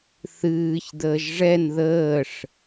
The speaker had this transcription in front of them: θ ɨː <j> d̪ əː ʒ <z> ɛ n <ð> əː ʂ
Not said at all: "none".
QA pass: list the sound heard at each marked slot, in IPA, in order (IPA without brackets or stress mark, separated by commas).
ç, ʐ, ð